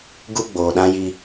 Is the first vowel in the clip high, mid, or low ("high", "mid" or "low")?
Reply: high